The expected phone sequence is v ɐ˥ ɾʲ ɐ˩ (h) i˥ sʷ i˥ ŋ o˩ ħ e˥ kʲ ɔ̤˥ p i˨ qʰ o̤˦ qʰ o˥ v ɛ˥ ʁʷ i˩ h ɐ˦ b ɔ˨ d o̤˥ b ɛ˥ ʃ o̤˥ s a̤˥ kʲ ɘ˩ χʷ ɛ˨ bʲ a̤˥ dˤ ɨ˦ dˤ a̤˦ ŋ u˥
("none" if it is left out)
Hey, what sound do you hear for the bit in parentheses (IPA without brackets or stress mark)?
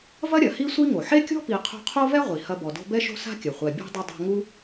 h